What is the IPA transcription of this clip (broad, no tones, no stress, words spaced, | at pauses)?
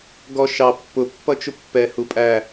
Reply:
ɡɔʃɑ pːʊ pːʌt͡ʃʊpːɛ hupʼæ